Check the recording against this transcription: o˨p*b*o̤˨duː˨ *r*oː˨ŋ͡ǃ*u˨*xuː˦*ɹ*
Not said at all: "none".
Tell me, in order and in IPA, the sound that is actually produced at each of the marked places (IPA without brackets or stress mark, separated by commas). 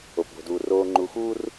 b, r, u˨, r